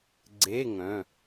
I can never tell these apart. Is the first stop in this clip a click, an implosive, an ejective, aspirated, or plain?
click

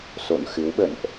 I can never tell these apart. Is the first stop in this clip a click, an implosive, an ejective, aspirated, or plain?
implosive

